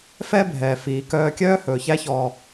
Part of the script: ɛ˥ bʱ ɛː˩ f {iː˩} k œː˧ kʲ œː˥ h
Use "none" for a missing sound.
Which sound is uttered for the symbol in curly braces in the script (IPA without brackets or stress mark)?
iː˩